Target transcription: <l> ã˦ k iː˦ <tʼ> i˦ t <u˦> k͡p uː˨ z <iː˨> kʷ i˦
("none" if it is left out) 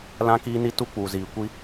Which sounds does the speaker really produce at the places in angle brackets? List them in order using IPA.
l, n, u˦, iː˨

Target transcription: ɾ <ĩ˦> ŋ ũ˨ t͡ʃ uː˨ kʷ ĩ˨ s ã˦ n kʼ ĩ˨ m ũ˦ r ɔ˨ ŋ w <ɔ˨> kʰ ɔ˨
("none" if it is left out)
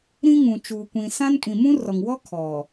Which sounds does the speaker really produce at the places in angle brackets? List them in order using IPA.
ĩ˦, ɔ˦

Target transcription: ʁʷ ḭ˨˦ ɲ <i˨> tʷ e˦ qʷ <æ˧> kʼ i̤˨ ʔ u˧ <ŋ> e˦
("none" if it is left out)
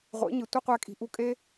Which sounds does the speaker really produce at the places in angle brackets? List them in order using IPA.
i˨, æ˧, kʼ

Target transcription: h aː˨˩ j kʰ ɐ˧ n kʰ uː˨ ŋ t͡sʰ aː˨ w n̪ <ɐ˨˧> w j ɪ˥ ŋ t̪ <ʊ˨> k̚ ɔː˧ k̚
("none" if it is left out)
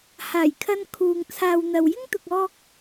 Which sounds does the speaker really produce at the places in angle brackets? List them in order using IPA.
ɐ˨, ʊ˨

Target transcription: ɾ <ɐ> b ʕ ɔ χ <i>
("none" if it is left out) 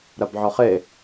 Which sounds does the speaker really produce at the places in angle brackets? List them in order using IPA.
ɐ, e

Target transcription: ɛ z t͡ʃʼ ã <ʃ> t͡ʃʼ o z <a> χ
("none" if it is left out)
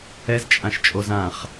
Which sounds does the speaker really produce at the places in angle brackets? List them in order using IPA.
ʃ, ã

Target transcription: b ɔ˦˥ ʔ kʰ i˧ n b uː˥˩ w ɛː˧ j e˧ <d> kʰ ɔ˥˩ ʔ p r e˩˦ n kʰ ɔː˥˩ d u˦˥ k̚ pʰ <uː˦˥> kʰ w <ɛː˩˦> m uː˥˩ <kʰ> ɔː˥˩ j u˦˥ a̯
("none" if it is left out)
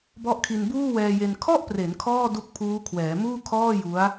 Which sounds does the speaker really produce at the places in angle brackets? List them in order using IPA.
n, uː˦˥, ɛː˩˦, kʰ

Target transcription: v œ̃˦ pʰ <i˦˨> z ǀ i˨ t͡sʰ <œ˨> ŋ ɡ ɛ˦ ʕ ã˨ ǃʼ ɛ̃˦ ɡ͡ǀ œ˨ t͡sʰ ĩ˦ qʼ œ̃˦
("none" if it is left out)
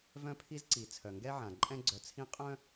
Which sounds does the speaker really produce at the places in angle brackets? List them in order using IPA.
i˦, œ˨

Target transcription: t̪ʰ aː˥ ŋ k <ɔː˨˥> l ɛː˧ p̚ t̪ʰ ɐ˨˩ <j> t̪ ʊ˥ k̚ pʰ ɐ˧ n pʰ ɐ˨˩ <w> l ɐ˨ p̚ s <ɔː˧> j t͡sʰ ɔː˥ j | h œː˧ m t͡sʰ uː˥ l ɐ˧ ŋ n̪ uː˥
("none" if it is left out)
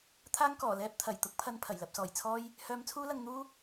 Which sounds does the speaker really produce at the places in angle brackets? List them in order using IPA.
ɔː˨˩, j, j, ɔː˨˩

